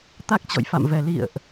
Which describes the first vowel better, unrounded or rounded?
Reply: unrounded